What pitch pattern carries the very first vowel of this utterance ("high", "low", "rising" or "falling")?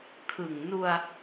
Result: low